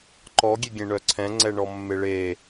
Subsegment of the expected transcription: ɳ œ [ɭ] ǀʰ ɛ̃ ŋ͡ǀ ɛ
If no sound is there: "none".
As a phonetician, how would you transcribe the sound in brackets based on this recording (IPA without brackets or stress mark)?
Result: none